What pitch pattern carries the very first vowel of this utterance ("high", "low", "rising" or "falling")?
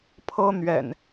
high